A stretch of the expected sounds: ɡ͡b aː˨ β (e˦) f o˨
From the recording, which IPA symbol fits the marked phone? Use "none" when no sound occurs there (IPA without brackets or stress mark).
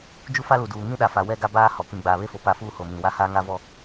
e˦